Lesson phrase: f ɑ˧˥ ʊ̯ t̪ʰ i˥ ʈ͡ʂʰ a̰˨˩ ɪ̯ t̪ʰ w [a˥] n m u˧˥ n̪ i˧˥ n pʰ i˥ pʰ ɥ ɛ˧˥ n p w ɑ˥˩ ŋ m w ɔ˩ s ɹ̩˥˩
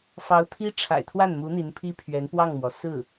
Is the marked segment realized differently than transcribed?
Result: yes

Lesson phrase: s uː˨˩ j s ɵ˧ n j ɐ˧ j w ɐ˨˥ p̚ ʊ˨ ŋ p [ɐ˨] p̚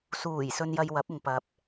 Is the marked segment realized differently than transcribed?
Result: yes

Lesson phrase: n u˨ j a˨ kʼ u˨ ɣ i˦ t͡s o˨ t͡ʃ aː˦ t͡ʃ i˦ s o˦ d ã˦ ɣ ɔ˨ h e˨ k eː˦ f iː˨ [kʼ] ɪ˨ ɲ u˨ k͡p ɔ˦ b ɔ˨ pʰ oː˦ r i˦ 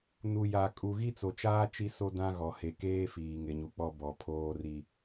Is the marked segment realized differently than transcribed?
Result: yes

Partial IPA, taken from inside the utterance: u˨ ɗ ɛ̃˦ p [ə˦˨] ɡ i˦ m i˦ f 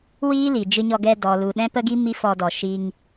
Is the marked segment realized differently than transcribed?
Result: yes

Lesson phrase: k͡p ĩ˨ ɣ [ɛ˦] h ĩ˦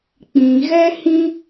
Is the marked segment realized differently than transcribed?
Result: no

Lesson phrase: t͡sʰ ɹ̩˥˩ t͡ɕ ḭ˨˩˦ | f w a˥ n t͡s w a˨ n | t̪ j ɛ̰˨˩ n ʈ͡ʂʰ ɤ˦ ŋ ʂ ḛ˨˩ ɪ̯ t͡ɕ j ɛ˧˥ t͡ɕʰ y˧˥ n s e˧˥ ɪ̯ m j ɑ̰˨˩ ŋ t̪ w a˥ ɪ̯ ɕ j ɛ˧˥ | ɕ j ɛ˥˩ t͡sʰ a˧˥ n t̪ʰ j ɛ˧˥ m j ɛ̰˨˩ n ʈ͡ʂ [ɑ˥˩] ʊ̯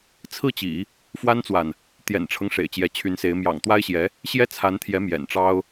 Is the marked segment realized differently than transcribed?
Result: yes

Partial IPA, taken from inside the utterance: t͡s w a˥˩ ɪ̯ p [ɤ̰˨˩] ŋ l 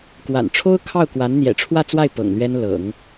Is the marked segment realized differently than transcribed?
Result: no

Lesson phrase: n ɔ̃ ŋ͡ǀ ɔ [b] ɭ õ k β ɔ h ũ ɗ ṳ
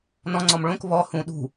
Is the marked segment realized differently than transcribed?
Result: yes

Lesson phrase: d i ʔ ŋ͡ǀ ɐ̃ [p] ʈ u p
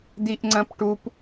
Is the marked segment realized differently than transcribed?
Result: no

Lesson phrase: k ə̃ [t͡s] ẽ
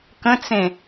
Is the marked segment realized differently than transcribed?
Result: no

